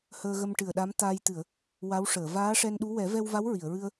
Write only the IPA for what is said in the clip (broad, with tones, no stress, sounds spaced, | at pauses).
h əː˧ ɣ ə˧ m ʈ ɨ˨˩ ə̯ ɗ a˧˥ m t̪ a˧ j t̪ ɨ˨˩˨ ə̯ | w a˧˥ w ʂ əː˨˩˨ v aː˧˥ ʂ ɛ˧ n ɗ u˧˥ w ɛ˨˩˦ v ɛ˧ w v a˧˥ w ɹ i˨˩˨ ə̯ ɹ ɨ˧ ə̯